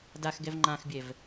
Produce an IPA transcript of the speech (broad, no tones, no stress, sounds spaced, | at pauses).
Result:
d a x ɡ ɛ v ŋ͡ǃ ã x bʲ ɛ v